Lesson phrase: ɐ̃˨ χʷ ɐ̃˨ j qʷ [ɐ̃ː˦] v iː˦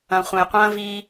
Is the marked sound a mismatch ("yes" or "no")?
no